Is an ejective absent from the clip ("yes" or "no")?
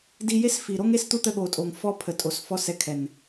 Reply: no